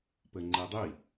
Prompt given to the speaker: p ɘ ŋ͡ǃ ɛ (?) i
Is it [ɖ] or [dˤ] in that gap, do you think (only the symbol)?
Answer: dˤ